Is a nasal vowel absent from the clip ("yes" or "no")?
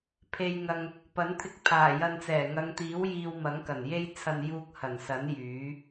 yes